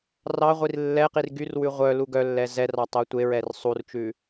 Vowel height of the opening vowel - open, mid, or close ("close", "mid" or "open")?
open